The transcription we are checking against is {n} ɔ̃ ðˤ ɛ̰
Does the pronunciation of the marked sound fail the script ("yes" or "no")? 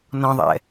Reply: no